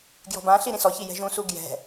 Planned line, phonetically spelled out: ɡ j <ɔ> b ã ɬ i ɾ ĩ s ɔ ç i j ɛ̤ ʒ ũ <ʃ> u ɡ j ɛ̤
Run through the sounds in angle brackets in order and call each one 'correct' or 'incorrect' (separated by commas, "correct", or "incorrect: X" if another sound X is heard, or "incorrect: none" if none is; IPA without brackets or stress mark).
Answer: incorrect: ɔ̤, incorrect: s